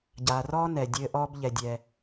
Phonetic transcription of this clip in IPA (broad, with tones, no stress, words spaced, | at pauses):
ɟaː˨rɔː˥ nɛ˩ dʲɘː˦ʔɔː˥b ʎɛ˨dʲɛ˨